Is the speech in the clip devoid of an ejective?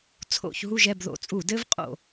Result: no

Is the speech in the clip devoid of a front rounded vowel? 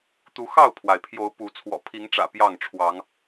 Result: yes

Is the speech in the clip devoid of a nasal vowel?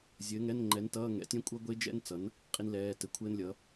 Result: no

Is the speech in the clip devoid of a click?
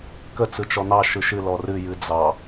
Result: yes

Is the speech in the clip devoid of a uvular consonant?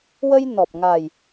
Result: yes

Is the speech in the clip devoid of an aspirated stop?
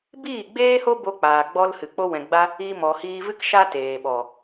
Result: yes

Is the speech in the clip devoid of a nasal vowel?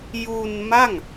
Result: yes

